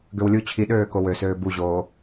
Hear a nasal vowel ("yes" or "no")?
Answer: no